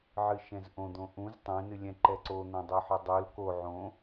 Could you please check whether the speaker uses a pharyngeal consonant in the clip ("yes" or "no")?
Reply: yes